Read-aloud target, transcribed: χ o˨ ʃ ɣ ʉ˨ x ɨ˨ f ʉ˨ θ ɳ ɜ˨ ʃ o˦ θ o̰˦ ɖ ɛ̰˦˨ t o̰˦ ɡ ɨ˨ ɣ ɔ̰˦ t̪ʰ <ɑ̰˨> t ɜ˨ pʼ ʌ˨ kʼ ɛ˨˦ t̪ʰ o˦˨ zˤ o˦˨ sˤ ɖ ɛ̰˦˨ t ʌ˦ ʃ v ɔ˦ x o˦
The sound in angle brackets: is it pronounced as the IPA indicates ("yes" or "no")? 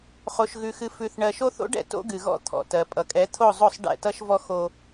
no